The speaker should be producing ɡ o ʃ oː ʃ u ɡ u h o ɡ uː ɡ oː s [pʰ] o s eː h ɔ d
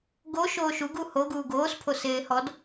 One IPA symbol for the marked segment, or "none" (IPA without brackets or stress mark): pʰ